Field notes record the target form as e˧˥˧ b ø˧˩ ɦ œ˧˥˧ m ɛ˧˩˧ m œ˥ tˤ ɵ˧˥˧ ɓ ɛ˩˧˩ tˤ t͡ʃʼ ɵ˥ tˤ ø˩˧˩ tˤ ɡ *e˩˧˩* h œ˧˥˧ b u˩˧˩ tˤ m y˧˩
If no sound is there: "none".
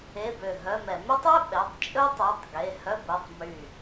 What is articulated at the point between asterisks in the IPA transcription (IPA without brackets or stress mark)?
e˩˧˩